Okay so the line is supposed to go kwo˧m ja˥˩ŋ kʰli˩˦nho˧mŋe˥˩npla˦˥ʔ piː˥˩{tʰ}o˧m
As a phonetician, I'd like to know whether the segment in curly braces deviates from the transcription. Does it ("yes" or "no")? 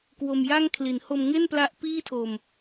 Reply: no